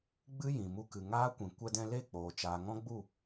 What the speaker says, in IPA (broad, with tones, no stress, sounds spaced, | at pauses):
ɡ͡b ɨ˦ j ĩ˨ m u˧ k ɨ˨ ŋ aː˦ kʷ ĩ˨ kʷ ɛ˧ d ɛ̃˧ l e˦˨ k͡p oː˨ t͡ʃ aː˨ ŋ ɔ̃˦ ɡ͡b u˦˨